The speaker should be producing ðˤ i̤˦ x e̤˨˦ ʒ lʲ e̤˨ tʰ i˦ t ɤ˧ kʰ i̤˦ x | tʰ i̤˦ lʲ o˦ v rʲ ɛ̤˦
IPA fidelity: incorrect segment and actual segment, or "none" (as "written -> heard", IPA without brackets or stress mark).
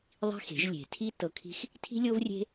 ɛ̤˦ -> e̤˦